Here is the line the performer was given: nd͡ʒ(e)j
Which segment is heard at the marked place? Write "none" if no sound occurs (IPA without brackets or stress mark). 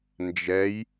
ɛ